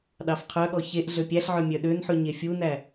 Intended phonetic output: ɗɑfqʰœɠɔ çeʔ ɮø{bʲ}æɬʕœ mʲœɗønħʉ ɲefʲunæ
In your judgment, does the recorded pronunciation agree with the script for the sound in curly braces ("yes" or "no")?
no